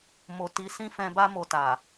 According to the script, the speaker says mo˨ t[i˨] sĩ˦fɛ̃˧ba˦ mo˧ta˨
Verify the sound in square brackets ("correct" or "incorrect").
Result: incorrect